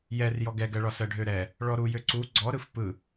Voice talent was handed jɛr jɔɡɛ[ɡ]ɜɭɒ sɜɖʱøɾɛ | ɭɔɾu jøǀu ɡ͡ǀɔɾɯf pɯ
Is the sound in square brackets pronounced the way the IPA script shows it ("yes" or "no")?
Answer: yes